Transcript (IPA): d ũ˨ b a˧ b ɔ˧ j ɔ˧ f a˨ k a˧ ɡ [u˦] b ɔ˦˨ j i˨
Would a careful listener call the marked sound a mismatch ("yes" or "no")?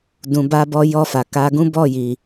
yes